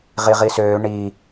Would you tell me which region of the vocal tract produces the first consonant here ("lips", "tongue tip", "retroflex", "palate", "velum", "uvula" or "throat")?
uvula